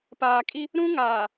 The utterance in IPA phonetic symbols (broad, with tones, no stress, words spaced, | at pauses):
paː˨kʼi˦ | ɾũ˦ŋaː˨